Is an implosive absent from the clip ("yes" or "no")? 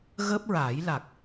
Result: yes